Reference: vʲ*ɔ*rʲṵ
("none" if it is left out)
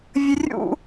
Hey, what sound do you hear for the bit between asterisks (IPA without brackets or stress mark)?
ə